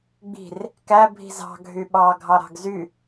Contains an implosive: yes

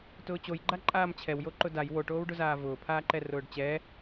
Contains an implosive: no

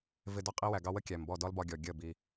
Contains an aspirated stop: no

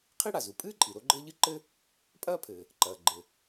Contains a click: yes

